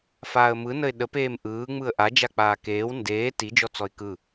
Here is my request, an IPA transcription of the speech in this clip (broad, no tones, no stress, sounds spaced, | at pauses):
f aː ə̯ m ɯ n ə ɪ̯ ɗ ə p eː m ʔ ɯː ŋ͡m ɯ ə̯ ʔ a d͡ʒ a k͡p aː k eː w n d eː t i d͡ʒ ɔ t͡s ɔ ɪ̯ k ɯ